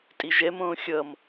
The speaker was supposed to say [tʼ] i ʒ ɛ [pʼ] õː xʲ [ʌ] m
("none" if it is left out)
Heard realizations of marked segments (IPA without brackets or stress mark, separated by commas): tʼ, m, ʌ